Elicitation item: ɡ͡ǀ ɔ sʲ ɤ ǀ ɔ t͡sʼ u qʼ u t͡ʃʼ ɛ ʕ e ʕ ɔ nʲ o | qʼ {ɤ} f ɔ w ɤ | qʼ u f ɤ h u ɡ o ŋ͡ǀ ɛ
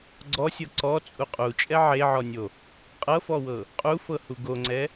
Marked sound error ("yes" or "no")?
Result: no